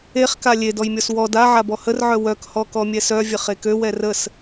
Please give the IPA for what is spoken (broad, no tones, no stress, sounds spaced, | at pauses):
e χ k a lʲ e d ɔ j mʲ ɔ s w ɔ d a ʕ a b ɔ h ə r ʕ œ w œ k h ɔ k ɔ mʲ ɛ s œ vʲ ə χ e k ø w ɛ r ə s